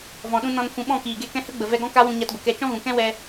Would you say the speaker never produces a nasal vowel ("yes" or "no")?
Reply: no